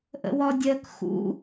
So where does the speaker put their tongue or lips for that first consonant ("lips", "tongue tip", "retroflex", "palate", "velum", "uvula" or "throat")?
throat